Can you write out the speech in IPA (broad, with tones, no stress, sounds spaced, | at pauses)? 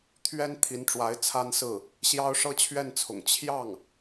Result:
t̪ʰ ɥ ɛ˥ n t̪ʰ i˧˥ n ʈ͡ʂ w a˧˥ ɪ̯ t͡sʰ a˥ n s ɹ̩˥˩ | ɕ j ɑ˥ ʊ̯ ʂ ɤ˥ t͡ɕʰ ɥ ɛ˥˩ n t͡sʰ ʊ̰˨˩ ŋ t͡ɕʰ j ɑ˥˩ ŋ